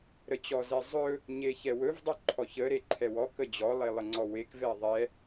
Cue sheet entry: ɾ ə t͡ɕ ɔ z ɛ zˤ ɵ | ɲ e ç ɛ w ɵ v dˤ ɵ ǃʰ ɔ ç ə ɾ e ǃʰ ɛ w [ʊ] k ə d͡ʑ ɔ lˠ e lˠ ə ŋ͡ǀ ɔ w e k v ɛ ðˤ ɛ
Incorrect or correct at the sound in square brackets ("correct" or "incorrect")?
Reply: incorrect